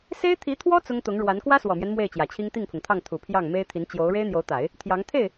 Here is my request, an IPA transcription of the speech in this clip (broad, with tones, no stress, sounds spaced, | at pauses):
s e˥ ɪ̯ t̪ʰ i˧˥ t̪ʰ w ɔ˥ t͡s ʊ˥ ŋ t̪ ʊ˧˥ ŋ ɻ w a˧˥ n k w ä˥ s w ɔ˨˩ m j ɛ˦ n m w e˥˩ ɪ̯ t͡ɕ j ä˨˩ t͡ɕʰ i˥ ŋ t̪ i˥˩ ŋ pʰ ʊ˩ ŋ t̪ʰ ɑ˥˩ ŋ t̪ʰ u˨˩ pʰ j ɑ˥˩ ŋ m e˥ ɪ̯ t̪ʰ i˧˥ n t͡ɕ j o˧˥ ʊ̯ ɻ e˥ ɪ̯ n̪ j o˧˥ ʊ̯ t̪ a˨˩˦ ɪ̯ | t̪ʰ j ɑ˧˥ ŋ t̪ʰ e˥˩ ɪ̯